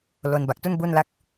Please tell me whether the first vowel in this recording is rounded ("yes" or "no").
yes